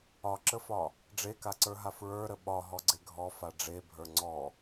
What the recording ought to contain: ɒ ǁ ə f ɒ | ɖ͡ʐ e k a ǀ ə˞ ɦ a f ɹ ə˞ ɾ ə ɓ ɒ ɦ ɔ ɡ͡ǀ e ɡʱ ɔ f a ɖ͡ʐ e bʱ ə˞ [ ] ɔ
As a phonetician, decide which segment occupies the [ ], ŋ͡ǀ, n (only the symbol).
ŋ͡ǀ